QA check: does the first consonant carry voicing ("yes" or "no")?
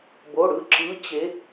yes